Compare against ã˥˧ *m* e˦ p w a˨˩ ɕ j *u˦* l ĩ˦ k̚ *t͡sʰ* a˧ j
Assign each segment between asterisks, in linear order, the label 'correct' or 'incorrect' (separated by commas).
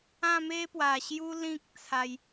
correct, correct, correct